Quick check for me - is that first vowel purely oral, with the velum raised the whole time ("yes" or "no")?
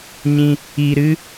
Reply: no